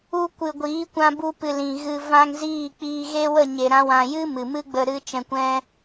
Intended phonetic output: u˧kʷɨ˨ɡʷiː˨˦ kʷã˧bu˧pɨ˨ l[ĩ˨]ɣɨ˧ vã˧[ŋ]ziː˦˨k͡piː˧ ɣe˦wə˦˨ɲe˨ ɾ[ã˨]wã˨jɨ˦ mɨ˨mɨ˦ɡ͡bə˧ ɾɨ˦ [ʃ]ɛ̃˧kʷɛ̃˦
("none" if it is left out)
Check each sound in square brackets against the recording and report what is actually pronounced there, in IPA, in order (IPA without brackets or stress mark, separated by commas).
ĩ˨, ŋ, ã˧, t͡ʃ